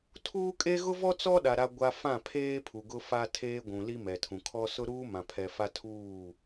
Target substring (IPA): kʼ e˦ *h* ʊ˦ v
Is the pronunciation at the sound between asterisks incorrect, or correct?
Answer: incorrect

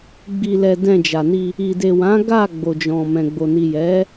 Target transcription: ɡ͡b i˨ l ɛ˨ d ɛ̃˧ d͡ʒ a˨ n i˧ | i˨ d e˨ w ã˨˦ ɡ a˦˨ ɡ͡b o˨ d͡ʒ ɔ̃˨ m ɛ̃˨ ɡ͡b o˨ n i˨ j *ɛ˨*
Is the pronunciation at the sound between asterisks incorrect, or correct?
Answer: incorrect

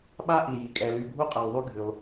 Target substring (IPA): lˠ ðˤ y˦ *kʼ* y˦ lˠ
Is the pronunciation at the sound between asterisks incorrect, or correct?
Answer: incorrect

